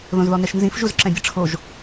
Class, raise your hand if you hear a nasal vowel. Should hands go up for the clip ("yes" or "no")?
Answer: yes